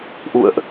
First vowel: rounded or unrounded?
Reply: rounded